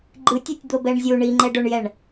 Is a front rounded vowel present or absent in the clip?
absent